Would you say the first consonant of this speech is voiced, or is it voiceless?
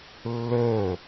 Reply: voiced